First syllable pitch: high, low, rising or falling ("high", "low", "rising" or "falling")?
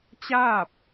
falling